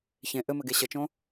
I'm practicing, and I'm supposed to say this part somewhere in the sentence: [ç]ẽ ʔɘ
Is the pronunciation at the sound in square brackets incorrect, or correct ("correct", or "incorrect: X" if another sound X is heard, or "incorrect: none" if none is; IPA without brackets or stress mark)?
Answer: correct